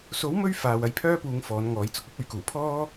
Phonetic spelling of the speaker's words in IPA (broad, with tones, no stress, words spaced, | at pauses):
so˨˥wmɵ˧ɥ faː˨w ɐ˧jpʰœː˥puː˨˧ŋ fɔː˨˥nŋɔː˨˥jt͡sʊ˥k̚ ɐ˥p̚ɵ˨˥ɥkuː˨˩pʰɔː˥